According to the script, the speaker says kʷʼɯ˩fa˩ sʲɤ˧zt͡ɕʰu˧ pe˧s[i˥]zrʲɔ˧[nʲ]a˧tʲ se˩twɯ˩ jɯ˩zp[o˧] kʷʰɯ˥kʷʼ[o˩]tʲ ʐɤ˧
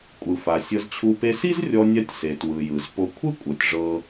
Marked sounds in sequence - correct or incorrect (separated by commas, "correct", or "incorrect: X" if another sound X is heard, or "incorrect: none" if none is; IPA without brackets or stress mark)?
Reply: correct, correct, correct, incorrect: ɤ˩